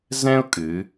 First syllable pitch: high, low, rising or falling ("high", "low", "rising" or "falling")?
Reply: high